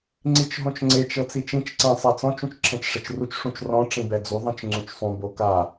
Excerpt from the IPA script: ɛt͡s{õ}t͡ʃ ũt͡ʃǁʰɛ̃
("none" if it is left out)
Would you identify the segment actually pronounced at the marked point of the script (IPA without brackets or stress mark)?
ɔ̃